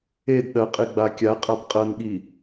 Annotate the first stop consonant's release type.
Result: plain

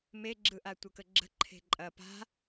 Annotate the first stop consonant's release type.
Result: click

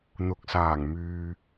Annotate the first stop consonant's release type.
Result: plain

